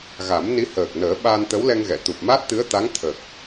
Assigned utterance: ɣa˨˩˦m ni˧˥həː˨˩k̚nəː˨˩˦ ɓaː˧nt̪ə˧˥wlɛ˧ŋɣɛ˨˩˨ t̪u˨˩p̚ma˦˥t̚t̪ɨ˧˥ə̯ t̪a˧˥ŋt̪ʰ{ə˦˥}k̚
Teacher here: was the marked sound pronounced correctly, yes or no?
no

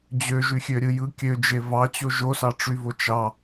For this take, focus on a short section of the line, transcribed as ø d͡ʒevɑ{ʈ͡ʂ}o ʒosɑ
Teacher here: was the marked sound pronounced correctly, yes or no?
no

